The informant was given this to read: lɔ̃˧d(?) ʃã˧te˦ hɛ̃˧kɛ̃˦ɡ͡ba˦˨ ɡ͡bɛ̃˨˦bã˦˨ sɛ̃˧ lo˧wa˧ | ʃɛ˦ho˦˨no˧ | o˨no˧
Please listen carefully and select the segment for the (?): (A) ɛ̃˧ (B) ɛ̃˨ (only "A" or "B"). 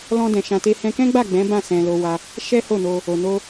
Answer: B